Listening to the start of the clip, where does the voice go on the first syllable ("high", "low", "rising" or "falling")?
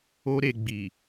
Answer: high